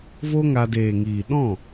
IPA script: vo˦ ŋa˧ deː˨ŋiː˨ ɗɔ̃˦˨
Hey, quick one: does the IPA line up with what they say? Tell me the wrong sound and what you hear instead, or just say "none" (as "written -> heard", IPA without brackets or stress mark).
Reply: none